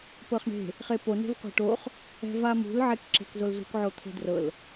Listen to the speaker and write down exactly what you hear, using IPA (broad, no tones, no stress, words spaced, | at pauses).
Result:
pɤχɳe̤ | χepo ne̤vqʷe̤ʈoχ | ɛ̤vamṳl ʕekǁe̤kzolzṳk ʕot̪ʰe̤drɤl